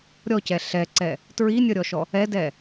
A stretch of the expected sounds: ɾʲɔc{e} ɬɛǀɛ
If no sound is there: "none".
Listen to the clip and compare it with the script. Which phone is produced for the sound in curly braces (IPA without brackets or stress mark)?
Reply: ɛ